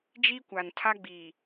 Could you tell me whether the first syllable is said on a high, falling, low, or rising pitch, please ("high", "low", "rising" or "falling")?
high